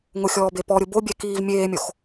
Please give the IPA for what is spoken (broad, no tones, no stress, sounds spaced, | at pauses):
ŋ ʊ xʲ ɔː b e p ɔ ɾʲ ʊ b o bʲ ɛ k iː v mʲ eː mʲ o x